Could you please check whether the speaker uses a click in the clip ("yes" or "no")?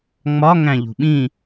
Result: no